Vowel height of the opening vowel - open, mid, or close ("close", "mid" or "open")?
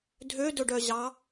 mid